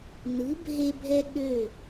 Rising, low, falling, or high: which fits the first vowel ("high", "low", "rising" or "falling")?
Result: rising